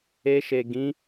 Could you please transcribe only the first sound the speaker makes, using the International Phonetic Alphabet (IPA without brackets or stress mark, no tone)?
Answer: e